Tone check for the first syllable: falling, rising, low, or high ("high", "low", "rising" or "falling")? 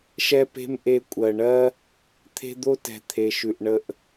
high